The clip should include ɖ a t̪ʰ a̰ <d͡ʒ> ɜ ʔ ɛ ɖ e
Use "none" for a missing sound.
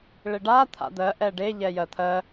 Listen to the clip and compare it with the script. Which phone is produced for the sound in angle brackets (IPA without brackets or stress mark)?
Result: d̪